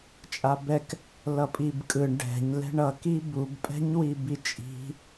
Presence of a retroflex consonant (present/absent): present